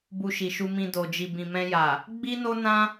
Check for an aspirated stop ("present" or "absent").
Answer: absent